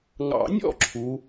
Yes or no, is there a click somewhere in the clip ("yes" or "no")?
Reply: yes